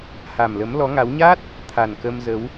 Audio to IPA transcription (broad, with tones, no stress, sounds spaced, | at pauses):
h a˨˩ m l ə˨˦ m l ɔ˨˦ ŋ a˨˦ w ɲ a˦˥ t̚ | t̪ʰ a˨˩ n k ə˧ m z ə˨˦ w